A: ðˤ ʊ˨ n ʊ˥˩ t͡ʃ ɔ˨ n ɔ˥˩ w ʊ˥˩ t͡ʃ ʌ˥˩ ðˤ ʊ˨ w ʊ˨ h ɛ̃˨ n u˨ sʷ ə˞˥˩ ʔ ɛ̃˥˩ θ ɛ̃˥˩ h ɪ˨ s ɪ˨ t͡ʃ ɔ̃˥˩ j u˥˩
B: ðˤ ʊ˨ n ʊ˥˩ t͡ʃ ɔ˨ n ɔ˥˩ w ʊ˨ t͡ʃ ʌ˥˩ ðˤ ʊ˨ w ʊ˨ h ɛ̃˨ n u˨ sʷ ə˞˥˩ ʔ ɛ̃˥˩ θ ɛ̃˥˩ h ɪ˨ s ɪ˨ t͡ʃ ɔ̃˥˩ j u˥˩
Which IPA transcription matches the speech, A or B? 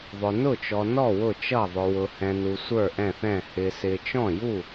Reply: A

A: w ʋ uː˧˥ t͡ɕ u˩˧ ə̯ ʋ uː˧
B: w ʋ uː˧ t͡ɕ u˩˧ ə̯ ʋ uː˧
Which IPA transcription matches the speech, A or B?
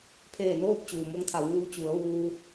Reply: B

